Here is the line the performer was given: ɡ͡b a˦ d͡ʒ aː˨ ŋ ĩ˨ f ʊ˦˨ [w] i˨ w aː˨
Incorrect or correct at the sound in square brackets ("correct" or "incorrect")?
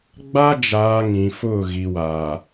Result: incorrect